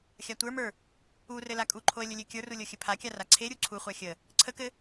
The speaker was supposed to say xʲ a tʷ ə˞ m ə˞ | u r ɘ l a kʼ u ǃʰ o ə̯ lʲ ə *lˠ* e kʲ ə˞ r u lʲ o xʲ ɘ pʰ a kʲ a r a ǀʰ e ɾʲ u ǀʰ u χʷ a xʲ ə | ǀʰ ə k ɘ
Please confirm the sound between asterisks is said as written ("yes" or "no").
no